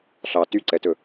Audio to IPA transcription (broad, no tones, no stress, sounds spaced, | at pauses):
ɬ ɑ t y ǀ ɛ t ɵ